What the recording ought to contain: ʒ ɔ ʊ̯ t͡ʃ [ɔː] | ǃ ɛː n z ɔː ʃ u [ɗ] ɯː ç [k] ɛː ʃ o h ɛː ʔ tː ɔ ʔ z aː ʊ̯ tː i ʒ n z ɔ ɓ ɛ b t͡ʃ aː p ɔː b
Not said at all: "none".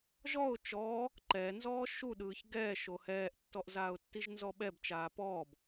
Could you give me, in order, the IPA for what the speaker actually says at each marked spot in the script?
ɔː, ɗ, ɡ

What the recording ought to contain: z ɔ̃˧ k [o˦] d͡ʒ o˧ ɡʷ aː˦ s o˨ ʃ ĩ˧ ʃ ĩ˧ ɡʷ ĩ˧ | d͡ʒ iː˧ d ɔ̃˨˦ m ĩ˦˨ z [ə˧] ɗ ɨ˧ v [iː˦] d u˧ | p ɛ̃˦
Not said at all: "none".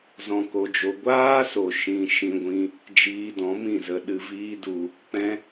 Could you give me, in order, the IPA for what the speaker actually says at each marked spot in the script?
o˧, ə˧, iː˦

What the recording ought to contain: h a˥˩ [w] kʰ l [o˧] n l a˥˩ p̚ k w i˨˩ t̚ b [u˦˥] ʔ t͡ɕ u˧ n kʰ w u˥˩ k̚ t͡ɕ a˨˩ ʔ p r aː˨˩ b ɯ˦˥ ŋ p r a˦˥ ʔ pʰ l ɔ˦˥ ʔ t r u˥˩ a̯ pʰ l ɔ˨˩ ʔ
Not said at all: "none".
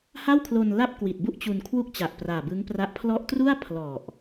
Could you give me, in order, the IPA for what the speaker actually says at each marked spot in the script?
w, o˧, u˥˩

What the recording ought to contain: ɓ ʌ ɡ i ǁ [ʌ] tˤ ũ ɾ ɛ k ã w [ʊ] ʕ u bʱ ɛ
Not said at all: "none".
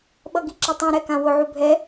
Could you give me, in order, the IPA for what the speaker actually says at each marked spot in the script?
ʌ, ʊ

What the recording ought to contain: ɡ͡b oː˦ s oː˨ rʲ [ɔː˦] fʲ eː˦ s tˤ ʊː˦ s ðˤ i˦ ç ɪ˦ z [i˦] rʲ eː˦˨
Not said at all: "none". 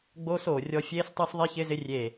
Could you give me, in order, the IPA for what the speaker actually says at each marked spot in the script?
ɔ˦, ɪ˦

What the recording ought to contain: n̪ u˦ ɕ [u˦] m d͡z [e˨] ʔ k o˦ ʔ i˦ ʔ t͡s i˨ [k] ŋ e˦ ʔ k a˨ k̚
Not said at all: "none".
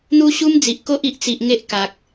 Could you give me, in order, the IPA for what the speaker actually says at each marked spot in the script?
u˦, i˨, ʔ

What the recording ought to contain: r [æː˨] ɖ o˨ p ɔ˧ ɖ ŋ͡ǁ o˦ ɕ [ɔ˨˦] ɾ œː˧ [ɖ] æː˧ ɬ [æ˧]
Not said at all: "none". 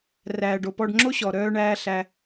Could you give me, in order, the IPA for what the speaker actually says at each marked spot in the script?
æː˨, ɔ˨, ɳ, æ˧

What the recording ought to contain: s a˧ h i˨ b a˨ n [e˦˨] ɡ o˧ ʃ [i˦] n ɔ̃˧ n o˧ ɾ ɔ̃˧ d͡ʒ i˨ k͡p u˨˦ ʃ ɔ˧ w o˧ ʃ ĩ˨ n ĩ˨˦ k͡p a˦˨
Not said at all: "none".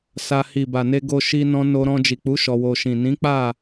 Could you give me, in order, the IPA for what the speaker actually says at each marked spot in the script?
e˧, i˧

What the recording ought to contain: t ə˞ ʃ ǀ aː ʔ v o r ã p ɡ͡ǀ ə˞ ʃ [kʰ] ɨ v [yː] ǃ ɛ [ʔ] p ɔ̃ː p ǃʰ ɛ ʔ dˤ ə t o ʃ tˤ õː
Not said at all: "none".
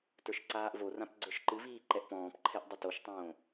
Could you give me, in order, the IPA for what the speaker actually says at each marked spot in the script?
ǃ, iː, ʔ

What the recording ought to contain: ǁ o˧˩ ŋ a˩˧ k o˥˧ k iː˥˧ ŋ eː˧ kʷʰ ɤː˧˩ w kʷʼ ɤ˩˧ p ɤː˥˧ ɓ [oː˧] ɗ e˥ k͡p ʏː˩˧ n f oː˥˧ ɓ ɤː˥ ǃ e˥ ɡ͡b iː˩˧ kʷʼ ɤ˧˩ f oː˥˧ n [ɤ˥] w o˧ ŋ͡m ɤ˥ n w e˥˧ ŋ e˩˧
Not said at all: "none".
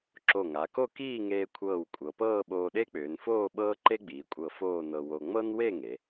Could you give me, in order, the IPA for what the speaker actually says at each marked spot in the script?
oː˧, ɤ˧

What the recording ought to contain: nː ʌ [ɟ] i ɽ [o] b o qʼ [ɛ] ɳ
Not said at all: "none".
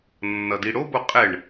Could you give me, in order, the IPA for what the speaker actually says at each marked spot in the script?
d, o, ɛ

